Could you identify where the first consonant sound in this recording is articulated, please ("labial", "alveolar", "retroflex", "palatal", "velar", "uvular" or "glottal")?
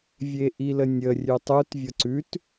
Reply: labial